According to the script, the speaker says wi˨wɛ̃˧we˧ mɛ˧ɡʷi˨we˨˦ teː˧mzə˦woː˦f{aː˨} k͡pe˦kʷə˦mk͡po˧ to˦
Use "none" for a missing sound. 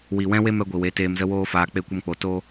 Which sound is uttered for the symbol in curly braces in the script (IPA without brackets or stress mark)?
aː˧